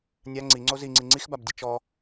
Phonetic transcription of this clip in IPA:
nʲa ŋ͡ǀiŋ͡ǀo ziŋ͡ǀi ŋ͡ǀixbabdʲe t͡ʃɔ

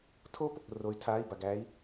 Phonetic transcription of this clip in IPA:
tʰo˦p | ro˩˧y̯tʰaː˩˧˩i̯ ba˩ɡæː˩˧i̯

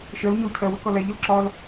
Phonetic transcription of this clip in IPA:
ʃɜlɲɔl cʰɜwəkɒ læʎɪl ǁɒl

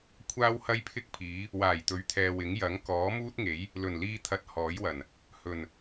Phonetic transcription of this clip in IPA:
kʷʰaː˥whɐ˥jpʰɪ˥k̚pʰiː˨˥ | waː˨˩jt̪ɵ˨˥ɥt̪ʰɛː˨ wɪ˨˥ŋjɐ˨˥ŋ kɔː˨˥muː˥t̚ŋe˨˥j | lɵ˨˩n liː˧t̪ʰɐ˨˥t̚ hɔː˨˥jwɐ˨˩n | hɵ˨˩n

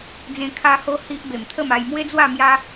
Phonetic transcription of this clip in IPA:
d͡zẽ˧ kʰa˧ho˧ hi˦ʔ be˨˩mt̪ʰə˥˧ma˧j mwe˦d͡zwa˥˧ mja˧

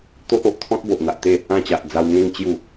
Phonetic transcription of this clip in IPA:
t̪o˦ʔo˨ʔ t̪ʰɔ̃˦t̚bo˨ʔn̪a˨ʔt̪e˥˧ | ã˦ t͡ɕa˨ʔd͡za˧wŋẽ˦ŋ t͡ɕju˥˧

